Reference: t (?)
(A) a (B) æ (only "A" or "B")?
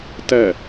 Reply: B